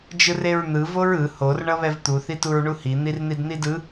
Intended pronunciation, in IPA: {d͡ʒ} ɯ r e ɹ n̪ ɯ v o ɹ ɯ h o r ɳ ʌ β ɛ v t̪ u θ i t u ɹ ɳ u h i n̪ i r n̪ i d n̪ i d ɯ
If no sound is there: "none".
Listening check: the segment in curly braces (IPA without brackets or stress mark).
d͡ʒ